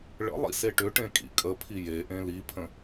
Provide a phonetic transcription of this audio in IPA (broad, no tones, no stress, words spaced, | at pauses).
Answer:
ɭə̰ lˠḭseʈʏʈẽ kʼḭkʼəpʰi jeʔẽ lipʰə̃